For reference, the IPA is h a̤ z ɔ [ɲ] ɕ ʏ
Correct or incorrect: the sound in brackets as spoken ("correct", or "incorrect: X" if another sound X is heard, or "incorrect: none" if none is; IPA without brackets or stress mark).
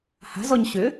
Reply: correct